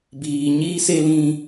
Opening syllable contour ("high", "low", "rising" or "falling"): low